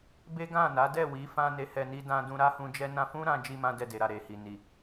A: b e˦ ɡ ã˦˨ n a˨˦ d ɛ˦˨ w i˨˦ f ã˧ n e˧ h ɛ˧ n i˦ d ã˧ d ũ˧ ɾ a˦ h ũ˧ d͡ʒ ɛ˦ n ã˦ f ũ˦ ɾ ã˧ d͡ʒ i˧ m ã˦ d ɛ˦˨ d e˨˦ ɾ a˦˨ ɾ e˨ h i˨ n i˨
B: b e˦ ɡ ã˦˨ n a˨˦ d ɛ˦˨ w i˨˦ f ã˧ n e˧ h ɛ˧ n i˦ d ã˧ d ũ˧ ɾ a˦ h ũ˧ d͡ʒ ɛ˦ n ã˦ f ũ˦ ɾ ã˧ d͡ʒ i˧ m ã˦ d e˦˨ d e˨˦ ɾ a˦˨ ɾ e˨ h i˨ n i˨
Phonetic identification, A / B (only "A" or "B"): A